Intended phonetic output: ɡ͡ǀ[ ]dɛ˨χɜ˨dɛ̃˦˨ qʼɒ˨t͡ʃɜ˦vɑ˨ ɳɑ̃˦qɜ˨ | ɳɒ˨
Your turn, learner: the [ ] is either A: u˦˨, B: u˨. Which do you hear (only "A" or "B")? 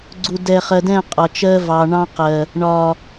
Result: B